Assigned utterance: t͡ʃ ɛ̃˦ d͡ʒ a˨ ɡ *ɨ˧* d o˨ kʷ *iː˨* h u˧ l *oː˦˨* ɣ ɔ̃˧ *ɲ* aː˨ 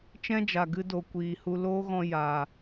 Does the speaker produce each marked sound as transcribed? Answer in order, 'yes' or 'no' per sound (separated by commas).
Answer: yes, yes, no, no